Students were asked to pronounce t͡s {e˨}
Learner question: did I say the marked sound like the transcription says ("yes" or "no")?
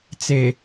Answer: yes